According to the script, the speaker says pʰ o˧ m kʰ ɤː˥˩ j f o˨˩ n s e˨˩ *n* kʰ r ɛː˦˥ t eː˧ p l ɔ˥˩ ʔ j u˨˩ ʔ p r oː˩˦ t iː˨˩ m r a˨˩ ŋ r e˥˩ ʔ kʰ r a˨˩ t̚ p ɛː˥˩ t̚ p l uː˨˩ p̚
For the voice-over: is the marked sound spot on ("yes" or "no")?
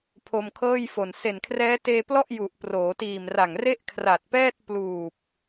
yes